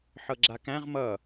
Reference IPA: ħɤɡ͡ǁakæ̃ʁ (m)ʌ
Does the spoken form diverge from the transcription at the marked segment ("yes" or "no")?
no